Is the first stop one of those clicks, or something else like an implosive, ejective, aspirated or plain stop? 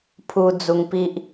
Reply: aspirated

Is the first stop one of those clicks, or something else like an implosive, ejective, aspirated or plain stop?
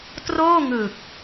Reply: plain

